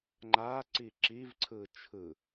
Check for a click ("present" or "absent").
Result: present